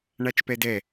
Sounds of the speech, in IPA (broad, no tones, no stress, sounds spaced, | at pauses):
ɳ a t͡ʃ p ɛ d ɛ